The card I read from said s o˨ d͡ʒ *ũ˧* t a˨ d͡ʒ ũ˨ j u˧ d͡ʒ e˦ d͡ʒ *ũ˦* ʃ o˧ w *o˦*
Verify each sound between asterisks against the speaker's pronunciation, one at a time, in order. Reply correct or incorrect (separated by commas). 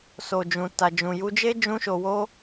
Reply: incorrect, correct, correct